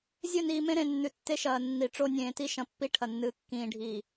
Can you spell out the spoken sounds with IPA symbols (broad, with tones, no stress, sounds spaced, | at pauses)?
zʲ ɵ˦˨ n iː˨ m ẽ˦ ɾ ẽ˨ nː ʉ˨ tː e˦ ʃ ɐː˨ nː i˨ ʈ͡ʂ o˦ nʲ ẽː˨ t i˦ ʃ ɐ̃˨ pː i˦ ʈʰ ɐ˨ nː ɨː˨ kː ĩː˨ ɖʱ iː˨